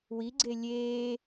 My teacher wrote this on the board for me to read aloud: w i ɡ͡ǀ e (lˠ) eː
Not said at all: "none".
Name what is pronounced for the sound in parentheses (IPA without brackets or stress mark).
lʲ